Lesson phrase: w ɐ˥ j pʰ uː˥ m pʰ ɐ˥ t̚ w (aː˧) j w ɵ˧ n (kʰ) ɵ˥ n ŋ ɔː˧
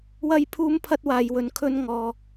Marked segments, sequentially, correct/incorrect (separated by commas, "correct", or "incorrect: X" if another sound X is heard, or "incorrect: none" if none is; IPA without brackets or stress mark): correct, correct